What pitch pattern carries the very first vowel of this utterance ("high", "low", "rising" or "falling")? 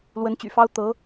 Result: rising